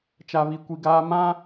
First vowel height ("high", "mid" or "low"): low